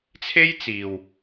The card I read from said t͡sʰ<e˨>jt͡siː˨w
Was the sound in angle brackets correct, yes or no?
no